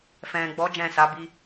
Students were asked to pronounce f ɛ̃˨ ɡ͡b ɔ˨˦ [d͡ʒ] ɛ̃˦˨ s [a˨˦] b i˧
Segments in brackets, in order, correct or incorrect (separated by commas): correct, correct